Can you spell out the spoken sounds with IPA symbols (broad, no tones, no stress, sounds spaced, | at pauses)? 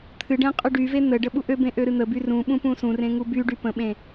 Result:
t̪ʰ ɨ ɖ ẽ qʼ y ɖ y v e n̪ ə ɖ ə ɓ u ʔ ø b ẽ ʔ ø ɾ ɨ n̪ ə b y r ũ ɓ ũ p ũ s ũ r ẽ ŋ u b y ɖ y p ə̃ ɓ ẽ